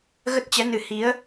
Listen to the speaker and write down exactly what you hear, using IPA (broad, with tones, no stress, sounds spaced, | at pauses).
ɣ ə˦˥ t̚ t͡ɕ ɛ˨˦ n ɨ˨˩ h i˨˦ ə̯